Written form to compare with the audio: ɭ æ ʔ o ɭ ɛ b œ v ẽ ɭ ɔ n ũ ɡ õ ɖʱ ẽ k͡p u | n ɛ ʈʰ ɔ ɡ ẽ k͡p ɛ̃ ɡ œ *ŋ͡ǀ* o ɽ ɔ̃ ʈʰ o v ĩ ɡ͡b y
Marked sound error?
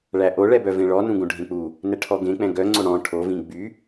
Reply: no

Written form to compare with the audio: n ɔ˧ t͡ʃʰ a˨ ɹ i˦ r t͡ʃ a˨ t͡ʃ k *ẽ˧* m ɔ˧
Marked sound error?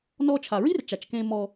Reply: no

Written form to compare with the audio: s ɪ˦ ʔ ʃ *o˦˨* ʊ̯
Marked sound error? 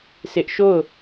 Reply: no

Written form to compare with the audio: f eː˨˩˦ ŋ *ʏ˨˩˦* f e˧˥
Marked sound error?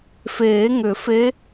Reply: no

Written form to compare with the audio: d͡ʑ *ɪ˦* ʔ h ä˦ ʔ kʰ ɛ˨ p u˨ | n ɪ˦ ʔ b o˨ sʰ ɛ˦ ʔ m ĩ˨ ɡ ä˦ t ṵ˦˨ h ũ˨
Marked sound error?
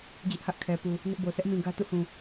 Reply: no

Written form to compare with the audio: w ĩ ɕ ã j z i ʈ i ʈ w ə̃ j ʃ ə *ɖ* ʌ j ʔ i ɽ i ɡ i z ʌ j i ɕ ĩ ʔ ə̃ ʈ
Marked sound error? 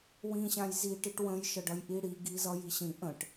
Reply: no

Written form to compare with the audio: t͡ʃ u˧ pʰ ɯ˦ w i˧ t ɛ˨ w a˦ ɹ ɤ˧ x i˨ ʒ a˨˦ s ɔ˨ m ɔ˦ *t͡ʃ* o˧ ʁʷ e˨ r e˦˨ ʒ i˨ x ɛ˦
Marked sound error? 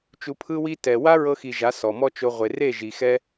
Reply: no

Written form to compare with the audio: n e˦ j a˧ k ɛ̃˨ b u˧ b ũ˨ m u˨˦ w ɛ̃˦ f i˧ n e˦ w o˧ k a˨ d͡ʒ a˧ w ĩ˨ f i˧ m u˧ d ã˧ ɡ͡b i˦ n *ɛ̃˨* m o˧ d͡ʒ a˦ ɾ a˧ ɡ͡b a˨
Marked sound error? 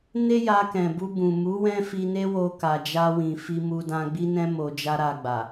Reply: yes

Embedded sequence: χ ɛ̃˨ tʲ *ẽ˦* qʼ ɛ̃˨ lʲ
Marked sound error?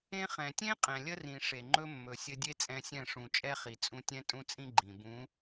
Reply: no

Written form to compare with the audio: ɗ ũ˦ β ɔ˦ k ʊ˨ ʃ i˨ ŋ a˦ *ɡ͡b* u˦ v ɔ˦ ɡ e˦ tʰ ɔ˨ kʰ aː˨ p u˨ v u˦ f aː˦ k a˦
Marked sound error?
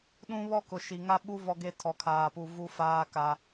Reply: yes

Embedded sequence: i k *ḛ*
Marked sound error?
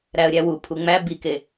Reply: yes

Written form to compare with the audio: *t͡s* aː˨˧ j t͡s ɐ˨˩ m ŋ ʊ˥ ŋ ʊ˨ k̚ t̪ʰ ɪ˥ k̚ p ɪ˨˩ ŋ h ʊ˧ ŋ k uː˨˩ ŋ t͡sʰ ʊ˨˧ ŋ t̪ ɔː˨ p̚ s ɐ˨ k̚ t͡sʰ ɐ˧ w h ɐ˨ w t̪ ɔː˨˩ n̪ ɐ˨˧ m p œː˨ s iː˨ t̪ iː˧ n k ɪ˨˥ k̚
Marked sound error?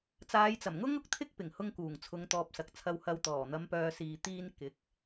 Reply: no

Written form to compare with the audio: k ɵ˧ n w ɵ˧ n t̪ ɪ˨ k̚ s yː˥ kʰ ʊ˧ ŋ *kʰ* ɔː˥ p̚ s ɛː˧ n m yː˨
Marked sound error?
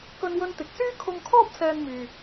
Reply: no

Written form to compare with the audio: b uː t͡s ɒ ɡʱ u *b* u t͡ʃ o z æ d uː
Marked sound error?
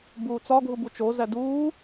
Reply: no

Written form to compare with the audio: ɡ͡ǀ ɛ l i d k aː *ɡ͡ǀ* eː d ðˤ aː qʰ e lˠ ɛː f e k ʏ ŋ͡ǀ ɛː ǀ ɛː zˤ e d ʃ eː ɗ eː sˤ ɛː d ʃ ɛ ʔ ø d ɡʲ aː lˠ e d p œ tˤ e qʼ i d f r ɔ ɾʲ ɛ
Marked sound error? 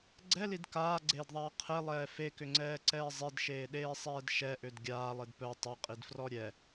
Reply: no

